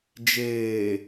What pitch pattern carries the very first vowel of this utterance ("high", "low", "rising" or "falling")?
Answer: low